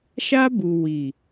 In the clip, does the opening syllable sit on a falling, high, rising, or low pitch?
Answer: high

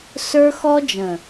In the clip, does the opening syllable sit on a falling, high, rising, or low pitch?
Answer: high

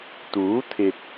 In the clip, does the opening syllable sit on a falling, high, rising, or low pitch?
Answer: rising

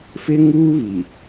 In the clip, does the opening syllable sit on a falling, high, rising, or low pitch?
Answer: high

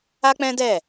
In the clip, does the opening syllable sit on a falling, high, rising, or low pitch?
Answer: high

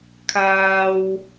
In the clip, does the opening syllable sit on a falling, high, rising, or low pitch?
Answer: low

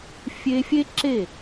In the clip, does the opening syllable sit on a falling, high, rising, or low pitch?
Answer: high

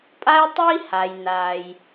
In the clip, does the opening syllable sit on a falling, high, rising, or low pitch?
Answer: high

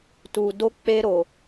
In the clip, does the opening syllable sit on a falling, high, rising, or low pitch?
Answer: low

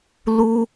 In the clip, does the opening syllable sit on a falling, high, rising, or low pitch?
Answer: high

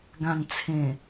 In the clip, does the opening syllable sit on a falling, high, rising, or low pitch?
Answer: low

